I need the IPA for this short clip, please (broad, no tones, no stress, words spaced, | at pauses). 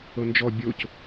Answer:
ɤnd͡ʒɔ bʲoc